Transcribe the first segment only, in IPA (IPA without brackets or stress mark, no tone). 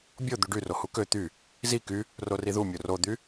bʲ